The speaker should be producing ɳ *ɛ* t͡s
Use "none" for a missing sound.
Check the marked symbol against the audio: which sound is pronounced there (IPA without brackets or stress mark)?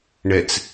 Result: ɛ